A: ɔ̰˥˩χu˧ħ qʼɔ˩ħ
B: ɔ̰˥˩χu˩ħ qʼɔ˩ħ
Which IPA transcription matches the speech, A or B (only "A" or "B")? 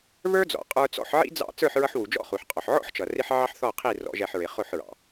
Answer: B